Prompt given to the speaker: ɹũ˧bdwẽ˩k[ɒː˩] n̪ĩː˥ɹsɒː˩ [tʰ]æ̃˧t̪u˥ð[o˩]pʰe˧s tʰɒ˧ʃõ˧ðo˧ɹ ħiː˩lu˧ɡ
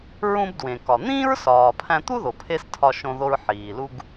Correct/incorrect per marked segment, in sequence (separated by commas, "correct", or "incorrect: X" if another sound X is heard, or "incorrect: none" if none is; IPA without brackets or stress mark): incorrect: ɒ˩, incorrect: pʰ, correct